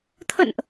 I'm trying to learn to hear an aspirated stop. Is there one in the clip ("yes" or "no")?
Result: yes